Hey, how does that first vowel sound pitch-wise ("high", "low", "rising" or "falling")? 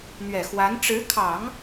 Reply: low